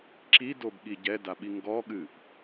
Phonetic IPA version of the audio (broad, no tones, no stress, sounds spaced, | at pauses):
ǁ i d o b ɠ i ɟ ɛ d a ɓ i ŋ ɡ ɔ ɠ ɨ ʔ